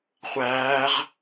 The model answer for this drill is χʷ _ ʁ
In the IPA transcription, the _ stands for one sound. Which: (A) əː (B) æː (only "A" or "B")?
B